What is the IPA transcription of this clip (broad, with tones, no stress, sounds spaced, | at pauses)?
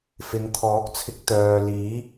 f ɪ˨˧ ŋ t̪ʰ ɔː˨˥ k̚ t͡sʰ ɪ˧ k̚ t̪ œː˨ l iː˨˥